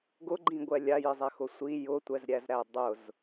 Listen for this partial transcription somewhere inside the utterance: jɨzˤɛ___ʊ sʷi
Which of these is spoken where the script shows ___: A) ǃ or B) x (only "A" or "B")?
B